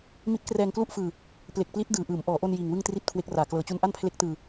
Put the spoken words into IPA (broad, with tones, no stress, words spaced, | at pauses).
mi˦˥t̚krɛː˧ŋklu˥˩ʔfɯː˧ | ple˨˩k̚pli˦˥t̚ dɯː˨˩ʔɯː˩˦m ʔɔː˩˦ʔo˧n jiː˨˩ŋwɯ˥˩ŋ tri˥˩t̚kʰwe˦˥k̚raː˨˩ klɤː˨˩t͡ɕu˧n ʔa˥˩npʰle˦˥k̚tɯː˧